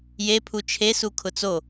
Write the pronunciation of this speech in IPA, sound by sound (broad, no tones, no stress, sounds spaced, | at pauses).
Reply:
j e pʰ u t͡ʃʰ e s u kʰ ʊ t͡s o